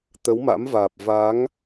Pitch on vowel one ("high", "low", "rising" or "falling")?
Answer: rising